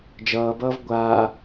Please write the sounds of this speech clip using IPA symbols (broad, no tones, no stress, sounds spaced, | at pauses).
d͡ʒ ʌː b ʌː v ɡʷ aː